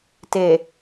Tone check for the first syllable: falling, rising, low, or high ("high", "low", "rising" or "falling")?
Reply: low